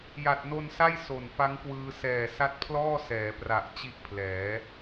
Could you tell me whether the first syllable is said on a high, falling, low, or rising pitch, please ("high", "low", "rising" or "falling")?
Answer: low